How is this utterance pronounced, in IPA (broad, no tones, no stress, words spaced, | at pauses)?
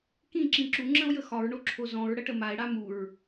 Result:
kĩǁĩ ǁuŋ͡ǁə̃o̯jə xɒɹɳoǁʰo zɔ̃ɹɽəʈə mae̯ɽa muɹ